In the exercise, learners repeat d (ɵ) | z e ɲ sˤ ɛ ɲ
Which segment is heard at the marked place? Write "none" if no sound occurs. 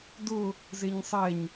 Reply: ʊ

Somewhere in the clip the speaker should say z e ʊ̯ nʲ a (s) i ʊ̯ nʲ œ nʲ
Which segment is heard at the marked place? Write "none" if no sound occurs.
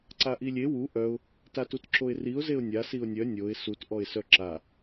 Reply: s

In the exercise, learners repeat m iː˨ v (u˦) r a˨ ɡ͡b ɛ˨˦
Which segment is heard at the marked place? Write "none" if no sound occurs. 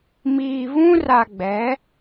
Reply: ũ˦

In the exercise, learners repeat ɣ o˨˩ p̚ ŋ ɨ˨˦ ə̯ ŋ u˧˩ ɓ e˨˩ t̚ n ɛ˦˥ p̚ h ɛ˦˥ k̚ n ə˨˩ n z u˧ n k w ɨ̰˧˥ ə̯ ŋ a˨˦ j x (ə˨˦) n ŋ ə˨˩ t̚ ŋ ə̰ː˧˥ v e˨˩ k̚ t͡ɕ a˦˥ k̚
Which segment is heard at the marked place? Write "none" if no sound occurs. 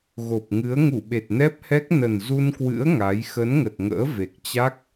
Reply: ə˨˦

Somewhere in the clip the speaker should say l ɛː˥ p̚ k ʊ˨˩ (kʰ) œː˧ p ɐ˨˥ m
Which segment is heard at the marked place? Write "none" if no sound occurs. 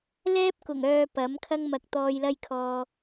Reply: ŋ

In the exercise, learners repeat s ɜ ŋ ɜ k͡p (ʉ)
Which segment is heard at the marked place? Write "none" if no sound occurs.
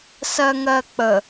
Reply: ə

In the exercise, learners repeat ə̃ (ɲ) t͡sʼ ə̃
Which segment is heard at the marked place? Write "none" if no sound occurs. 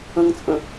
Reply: ŋ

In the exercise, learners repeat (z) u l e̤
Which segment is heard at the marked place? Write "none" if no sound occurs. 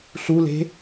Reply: ɬ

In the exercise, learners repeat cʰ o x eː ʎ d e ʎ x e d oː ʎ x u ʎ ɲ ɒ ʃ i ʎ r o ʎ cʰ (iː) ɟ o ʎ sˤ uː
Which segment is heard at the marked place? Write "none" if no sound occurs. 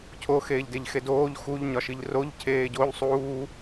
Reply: eː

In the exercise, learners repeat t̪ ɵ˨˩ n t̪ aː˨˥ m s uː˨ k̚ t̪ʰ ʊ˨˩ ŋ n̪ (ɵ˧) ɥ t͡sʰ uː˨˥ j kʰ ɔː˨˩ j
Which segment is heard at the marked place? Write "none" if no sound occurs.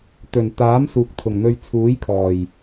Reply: ɵ˧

